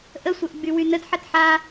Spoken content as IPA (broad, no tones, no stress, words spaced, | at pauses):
ʔəsʷɜʔ ɡ͡bywynəd ħɐtħa